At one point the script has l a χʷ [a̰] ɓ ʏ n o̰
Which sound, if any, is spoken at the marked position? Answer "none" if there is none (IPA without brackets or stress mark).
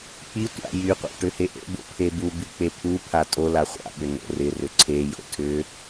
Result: a̰